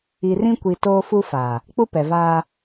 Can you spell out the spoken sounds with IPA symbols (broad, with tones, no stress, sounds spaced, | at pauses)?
i˨ r ĩ˦ kʷ i˨ t oː˦ f u˦ f aː˨ | k͡p u˦ p ɛ˨ v aː˦